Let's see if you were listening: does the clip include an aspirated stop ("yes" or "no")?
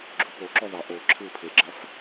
yes